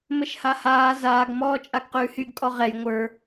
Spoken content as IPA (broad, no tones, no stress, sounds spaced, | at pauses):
m ə ʃ h a h aː z aː ɡ m ɔː t͡ʃʼ a ɡ q ʉː h y ɡ kʼ ɔ ʁ ɛ j ŋʷ ə˞